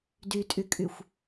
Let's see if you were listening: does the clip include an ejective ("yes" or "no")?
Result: yes